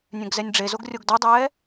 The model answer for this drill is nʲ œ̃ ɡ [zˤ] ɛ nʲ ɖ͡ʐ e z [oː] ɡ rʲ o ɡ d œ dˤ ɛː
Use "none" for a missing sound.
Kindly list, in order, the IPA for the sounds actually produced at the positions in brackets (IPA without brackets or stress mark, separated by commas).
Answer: z, o